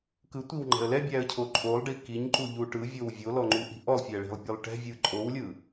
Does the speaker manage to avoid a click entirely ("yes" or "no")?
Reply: no